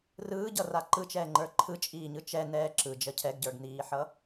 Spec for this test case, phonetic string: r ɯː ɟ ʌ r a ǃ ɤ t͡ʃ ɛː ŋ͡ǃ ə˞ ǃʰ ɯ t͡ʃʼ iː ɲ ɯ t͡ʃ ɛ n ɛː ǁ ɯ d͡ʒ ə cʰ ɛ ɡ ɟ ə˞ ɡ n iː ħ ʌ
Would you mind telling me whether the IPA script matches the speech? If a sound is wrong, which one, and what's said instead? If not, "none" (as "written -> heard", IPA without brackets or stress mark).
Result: ɤ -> ɯ